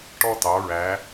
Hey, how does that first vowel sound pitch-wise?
high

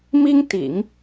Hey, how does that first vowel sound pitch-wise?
high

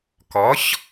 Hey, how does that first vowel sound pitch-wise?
rising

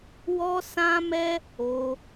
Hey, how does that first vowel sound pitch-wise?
high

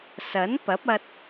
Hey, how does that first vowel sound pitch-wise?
rising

